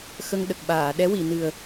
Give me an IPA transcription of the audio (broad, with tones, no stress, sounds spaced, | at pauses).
x ə˧ ŋ ɗ ə˨˩ k̚ ɓ aː˨˩˨ ɗ ɛ˧˥ w i˨˩˨ n ɨ˨˩ ə̯